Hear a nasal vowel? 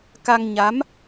no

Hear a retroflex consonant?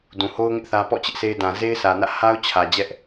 no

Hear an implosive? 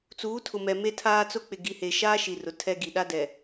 yes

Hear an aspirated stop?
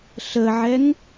no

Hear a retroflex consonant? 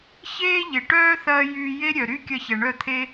yes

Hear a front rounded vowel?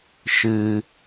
no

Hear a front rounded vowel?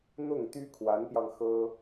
yes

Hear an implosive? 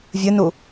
no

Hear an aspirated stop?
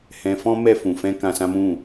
no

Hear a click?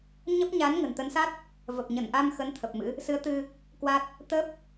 no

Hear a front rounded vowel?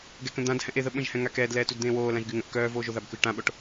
yes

